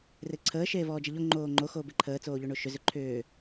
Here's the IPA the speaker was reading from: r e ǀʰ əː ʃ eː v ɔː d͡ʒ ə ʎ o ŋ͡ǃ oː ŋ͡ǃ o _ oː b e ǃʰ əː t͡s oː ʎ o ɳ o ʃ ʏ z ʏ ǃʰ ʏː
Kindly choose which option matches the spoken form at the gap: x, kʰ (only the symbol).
x